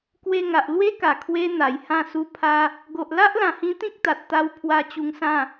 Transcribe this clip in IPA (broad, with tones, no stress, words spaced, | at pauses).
kwe˧ŋa˨ʔlwe˦ka˨˩ kʰwe˦n̪a˨˩jhã˥˧su˦ pʰa˦ | ɡo˨ʔla˦ʔlã˨˩hĩ˧ t̪ĩ˦k̚t̪a˨t̚t̪a˧w pʰwa˧ t͡ɕu˧ŋsã˥˧